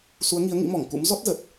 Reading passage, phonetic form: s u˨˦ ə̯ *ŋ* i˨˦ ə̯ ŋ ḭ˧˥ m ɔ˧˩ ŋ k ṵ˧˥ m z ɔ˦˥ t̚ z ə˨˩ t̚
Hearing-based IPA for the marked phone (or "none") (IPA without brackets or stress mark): ŋ